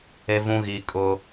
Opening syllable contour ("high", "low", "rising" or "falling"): high